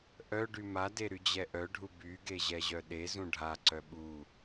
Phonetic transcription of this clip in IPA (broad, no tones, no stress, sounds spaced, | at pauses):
ʔ œ ɖ y m a d e ɾ y d͡ʑ ɛ ʔ œ ɖʱ u b y ɡ e ʑ ɛ ʑ œ ɗ e z ũ ɖʱ a ǀ œ ɓ u